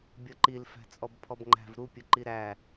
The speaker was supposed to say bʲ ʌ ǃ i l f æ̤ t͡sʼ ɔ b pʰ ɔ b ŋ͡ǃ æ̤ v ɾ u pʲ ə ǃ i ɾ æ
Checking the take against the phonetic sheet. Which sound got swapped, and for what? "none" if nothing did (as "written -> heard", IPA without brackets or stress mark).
none